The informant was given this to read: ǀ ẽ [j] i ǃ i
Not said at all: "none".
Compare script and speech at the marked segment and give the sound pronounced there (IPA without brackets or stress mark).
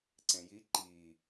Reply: j